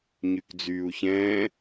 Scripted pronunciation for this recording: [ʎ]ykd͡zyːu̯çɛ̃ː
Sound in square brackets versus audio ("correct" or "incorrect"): incorrect